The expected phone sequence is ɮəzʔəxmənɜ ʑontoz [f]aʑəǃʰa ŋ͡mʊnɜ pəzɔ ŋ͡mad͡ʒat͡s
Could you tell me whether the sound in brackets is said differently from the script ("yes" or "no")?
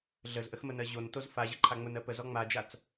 no